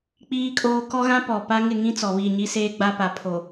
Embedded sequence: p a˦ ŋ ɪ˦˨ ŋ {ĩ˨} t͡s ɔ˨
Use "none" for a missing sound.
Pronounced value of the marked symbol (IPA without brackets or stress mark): ĩ˦